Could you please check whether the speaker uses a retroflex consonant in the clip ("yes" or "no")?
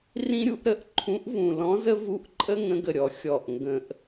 no